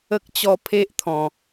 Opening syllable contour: high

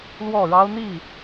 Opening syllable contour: falling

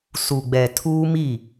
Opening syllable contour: low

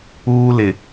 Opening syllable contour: high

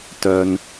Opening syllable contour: high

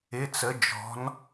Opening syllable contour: rising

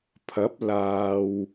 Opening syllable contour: rising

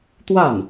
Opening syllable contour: falling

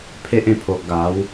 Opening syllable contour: high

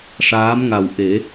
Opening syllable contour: rising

